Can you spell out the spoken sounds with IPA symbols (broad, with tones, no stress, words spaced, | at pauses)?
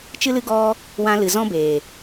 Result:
t͡ʃɨ˦lɨ˦ ɡɔ˦ | wã˧lɨ˨ zɔ̃˦beː˨